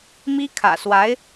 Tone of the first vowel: high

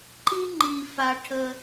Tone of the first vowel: high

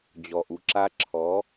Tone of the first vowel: low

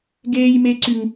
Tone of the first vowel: high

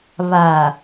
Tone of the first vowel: low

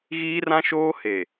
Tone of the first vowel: high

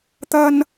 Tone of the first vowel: high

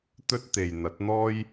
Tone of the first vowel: high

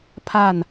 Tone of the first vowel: falling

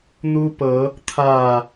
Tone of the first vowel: high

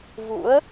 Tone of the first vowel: rising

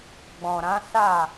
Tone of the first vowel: low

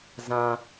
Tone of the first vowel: high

